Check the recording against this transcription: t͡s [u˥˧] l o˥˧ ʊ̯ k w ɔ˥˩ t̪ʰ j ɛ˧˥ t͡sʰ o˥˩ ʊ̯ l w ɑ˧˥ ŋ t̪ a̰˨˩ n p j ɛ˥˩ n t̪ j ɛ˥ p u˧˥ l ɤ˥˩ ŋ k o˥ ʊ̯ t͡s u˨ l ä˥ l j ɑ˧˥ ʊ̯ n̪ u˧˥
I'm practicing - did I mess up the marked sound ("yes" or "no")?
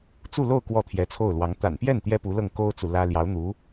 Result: no